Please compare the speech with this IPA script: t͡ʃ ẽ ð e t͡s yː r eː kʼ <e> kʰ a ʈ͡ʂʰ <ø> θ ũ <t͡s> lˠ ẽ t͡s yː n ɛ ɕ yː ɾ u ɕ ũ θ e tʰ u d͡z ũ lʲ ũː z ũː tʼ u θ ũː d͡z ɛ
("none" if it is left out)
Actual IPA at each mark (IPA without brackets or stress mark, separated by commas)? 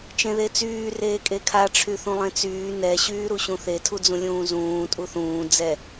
e, y, none